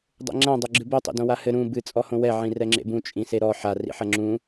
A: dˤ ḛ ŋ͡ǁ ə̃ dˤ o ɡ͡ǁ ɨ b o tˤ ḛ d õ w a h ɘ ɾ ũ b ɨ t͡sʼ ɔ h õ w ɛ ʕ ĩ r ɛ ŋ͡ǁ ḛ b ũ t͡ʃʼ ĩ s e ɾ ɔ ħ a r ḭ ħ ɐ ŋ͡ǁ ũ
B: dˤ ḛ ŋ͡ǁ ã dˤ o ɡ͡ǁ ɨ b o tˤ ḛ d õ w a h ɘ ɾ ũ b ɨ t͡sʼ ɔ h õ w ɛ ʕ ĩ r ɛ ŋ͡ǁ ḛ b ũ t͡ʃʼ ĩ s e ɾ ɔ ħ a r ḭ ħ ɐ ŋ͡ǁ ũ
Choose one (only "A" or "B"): B